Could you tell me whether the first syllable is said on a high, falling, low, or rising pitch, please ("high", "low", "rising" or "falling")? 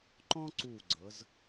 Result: high